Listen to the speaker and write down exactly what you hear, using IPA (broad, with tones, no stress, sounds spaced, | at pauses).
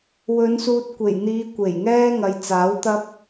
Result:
w ɵ˨˧ n s uː˧ t̚ kʷ e˨˩ j n̪ iː˨˧ kʷ e˨˩ j ŋ ɛː˥ ŋ ɐ˨ j t͡s aː˨˥ w t̪ ɐ˥ p̚